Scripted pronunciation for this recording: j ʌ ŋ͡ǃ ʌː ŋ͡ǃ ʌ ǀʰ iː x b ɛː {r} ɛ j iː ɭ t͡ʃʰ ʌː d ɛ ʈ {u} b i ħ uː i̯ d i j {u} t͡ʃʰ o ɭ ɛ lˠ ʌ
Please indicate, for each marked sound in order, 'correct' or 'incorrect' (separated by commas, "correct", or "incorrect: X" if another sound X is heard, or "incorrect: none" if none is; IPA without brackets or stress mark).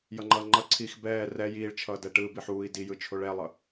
correct, incorrect: ɯ, incorrect: ɯ